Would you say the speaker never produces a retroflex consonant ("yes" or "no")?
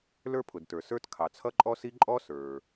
yes